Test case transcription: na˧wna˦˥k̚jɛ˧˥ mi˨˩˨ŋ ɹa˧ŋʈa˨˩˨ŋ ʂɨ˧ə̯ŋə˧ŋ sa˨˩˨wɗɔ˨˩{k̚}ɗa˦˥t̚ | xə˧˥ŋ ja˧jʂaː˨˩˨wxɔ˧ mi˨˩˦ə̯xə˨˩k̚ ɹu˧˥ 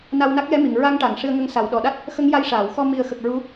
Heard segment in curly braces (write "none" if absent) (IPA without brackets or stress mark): none